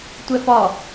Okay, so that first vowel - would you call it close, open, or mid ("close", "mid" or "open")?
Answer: mid